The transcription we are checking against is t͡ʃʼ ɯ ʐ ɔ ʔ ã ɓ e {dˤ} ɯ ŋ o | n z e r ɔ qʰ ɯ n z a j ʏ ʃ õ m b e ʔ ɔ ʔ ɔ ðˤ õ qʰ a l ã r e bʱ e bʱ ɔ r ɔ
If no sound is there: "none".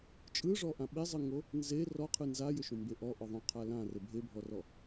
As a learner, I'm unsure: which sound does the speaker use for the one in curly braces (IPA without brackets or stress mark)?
zˤ